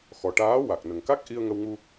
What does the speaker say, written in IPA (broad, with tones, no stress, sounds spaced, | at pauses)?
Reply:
x ɔ˨˩ ʈ aː˧˥ w a˨˩ k̚ n ə˨˩ ŋ k a˦˥ k̚ ʔ i˧ ə̯ ŋ ə˧ w ŋ u˧